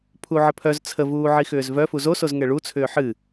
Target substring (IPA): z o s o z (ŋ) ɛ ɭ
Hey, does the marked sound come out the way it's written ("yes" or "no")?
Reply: yes